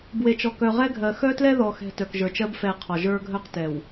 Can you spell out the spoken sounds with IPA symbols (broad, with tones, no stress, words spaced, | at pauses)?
bwe˨t͡ʃɔ˨ kœ˨ʁɛ˦ɡʱɜ˨ xœ˦tlɛ˦ðɔ˨xɛ̤˨ tœ˨kʒə˞˨t͡ʃɜ˦b fɛ˨ qʰɔ˨ʒə˞˦ɡʱœ˦q tɛ˨w